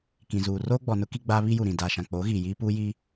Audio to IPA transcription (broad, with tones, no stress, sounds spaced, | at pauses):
k ĩ˨ z uː˨ r oː˦ ɡ͡b ɔ˨ n ʊ˦ k i˦ ɡ͡b aː˦ β i˦ j u˨ ɾ ĩ˨ d aː˨ ʃ ã˨ k͡p oː˨˦ ɣ iː˨ j iː˦ p uː˦ j i˦